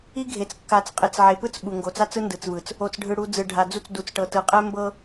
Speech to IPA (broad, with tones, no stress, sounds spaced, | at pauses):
i˦ ɡʱ e˨ t͡s kː a˨ t͡s qʼ e˨ t͡s ʕ e˨ p ɯ˦ t͡s ɓ u˨ ŋ ɡ o˨ t͡s a˦ t͡s ɯ˦ n d ɯ˨ t͡s v ɯ˨ t͡s | o˨ t͡s ɖʱ ɯ˨ ɽ u˨ d͡z ɯ˨ ɖʱ a˨ d͡z u˦ t͡s d u˨ t͡s ʈ ɤ˨ t ɯ˨ qʼ ɛ˦ m b ɤ˦